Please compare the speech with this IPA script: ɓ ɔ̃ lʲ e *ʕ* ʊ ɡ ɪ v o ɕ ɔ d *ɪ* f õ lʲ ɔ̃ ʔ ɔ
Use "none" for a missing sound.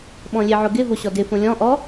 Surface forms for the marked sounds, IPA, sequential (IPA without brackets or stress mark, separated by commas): ʕ, ɪ